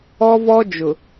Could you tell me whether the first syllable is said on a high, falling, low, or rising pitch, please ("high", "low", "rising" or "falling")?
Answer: high